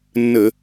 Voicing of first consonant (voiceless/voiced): voiced